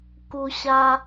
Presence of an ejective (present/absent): absent